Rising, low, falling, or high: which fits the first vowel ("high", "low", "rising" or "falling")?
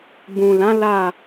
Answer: low